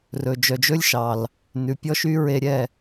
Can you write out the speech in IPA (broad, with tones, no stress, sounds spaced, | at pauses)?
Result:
r ɵ˨ d͡ʒ œ˨ d͡ʒ ɵ˦ lʲ ʃ ɑ˨ l | n ʉ˨ pʲ ɔ˦ ʃ y˦ ɹ e˧ ɾʲ ɛ˦˨